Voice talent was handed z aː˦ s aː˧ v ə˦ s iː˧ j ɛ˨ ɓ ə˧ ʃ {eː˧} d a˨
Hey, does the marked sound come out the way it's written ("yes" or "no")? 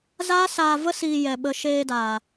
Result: yes